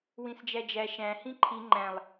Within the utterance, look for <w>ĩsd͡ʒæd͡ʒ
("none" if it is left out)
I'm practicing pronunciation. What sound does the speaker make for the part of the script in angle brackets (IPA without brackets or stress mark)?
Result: w